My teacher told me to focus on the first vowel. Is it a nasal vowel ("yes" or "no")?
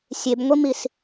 no